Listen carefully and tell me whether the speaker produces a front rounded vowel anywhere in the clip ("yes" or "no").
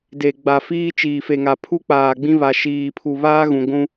no